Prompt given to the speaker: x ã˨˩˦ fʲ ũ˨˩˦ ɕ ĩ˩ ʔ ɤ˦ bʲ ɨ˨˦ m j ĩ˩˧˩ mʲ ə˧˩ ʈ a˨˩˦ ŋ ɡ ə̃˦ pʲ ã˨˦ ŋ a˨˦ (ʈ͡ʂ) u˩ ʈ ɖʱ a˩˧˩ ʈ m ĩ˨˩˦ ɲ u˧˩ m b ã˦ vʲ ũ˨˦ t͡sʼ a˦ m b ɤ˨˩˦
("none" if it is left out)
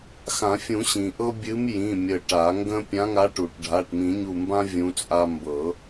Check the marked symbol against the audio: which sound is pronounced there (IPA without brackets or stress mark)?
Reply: ʈ